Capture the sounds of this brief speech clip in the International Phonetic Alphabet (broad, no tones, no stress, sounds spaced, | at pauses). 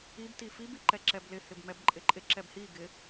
i b t i f i b i ǃ ɛ ǁ ɛ b l ɪ h ɪ b m ɛ b ǃʼ ɪ ǃʼ ɪ ǁ ɛ b h i ɡ ɪ